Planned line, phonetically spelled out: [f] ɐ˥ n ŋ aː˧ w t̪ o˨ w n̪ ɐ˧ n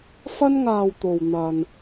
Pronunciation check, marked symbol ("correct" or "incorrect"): correct